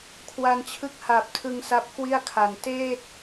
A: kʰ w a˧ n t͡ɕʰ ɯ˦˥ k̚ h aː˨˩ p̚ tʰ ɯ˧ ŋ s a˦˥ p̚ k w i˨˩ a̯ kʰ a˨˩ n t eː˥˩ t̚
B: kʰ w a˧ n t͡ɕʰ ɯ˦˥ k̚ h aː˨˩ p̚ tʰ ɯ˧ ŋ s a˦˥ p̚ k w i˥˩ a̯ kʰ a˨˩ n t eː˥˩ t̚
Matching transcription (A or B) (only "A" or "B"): B